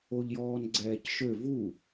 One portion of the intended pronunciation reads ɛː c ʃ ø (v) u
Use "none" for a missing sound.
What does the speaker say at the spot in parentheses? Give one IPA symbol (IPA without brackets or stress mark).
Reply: v